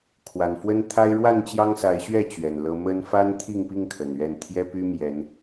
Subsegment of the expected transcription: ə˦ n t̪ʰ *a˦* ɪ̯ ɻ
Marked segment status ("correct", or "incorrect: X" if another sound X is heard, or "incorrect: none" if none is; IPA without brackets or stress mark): correct